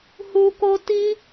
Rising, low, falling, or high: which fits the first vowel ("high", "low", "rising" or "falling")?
high